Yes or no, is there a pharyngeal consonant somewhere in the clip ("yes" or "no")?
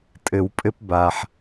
yes